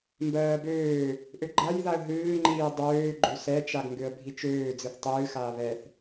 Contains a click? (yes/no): yes